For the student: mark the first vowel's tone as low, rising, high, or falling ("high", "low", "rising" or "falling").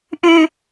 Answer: high